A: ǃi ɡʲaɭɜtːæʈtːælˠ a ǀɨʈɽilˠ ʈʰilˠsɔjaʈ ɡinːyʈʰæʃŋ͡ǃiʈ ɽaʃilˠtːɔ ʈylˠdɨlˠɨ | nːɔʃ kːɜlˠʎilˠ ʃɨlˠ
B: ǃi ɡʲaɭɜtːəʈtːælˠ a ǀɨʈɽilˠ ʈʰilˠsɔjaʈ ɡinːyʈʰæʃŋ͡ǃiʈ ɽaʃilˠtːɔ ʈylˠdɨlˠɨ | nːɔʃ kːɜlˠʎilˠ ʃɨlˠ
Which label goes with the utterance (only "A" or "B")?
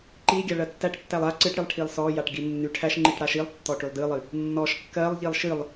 A